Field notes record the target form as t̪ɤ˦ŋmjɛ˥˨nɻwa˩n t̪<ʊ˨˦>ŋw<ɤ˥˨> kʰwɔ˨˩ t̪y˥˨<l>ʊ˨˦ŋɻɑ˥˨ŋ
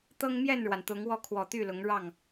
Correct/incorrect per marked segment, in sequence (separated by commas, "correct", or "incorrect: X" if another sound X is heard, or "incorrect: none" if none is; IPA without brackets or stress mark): correct, incorrect: ɔ˥˨, correct